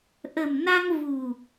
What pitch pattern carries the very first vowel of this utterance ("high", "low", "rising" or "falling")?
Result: low